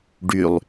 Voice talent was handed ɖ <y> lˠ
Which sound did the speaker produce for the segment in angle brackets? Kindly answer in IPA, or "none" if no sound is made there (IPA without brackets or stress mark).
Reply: y